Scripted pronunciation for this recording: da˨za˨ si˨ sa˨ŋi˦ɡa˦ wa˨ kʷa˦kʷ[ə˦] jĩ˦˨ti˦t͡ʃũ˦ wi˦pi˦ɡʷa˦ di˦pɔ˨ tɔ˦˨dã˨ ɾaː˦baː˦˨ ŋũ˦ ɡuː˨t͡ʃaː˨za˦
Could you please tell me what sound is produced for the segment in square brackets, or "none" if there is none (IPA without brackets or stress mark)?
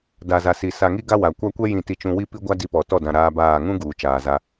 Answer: ɛ˦